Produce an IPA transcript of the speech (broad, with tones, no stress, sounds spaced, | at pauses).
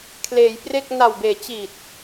kʰ l eː˩˦ j p r e˥˩ k̚ n a˨˩ w b eː˩˦ t͡ɕ i˨˩ t̚